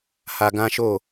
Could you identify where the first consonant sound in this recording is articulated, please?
glottal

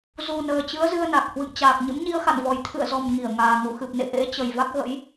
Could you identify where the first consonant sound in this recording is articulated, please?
alveolar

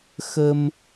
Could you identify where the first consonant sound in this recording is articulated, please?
velar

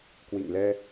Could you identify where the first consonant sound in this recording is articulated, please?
velar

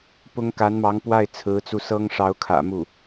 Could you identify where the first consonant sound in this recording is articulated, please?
labial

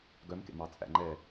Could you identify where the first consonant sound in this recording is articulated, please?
velar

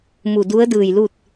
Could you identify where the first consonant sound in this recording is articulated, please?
labial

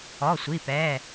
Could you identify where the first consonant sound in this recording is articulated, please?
alveolar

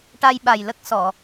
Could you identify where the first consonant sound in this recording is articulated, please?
retroflex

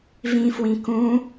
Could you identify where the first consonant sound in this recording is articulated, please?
labial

